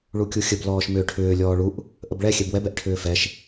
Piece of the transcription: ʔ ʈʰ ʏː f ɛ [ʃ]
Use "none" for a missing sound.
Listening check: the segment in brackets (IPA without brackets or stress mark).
ʃ